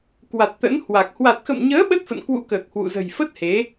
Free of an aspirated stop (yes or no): yes